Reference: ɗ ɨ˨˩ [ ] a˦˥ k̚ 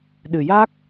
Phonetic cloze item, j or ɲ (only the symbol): j